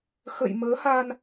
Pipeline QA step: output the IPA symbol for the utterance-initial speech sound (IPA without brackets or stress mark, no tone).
x